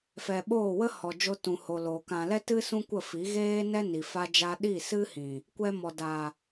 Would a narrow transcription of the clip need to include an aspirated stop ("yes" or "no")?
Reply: no